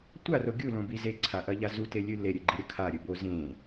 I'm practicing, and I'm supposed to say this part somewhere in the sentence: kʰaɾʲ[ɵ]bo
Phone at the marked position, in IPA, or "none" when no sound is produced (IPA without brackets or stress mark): ɵ